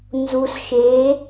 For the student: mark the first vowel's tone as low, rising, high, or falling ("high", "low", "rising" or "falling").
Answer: low